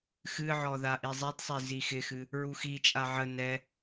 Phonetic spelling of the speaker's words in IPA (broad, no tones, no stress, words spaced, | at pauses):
xɨʕɔ ðaʔizˤidsˤi zixɪxɨ | ɹuxit͡ʃʼa ʕə nɛ